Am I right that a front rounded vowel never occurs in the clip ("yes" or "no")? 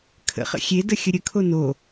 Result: yes